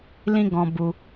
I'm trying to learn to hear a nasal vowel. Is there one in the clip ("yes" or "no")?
yes